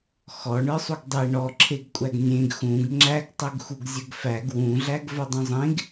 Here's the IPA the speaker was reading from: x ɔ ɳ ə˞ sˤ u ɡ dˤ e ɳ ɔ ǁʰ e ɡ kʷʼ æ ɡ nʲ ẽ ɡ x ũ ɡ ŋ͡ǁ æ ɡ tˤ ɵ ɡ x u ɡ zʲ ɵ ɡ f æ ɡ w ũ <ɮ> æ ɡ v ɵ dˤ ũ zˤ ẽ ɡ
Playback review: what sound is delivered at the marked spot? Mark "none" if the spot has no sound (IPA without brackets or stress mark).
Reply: ɮ